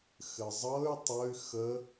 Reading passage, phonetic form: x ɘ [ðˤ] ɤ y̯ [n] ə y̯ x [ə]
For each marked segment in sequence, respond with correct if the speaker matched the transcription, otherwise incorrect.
incorrect: zˤ, incorrect: tˤ, correct

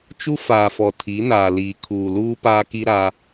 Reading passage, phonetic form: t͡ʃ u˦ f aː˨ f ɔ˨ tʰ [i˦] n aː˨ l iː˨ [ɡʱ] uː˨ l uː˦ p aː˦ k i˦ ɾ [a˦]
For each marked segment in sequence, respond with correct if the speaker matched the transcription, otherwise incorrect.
incorrect: i˨˦, incorrect: kʰ, correct

